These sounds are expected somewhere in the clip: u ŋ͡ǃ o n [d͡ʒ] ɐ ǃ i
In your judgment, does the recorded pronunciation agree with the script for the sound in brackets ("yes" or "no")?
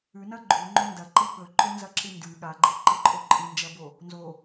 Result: no